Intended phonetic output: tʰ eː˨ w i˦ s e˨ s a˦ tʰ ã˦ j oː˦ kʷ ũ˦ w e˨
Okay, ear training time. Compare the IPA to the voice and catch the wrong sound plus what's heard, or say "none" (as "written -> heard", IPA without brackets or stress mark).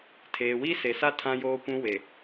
none